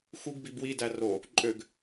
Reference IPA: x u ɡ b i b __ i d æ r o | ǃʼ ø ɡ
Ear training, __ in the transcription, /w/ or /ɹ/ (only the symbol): w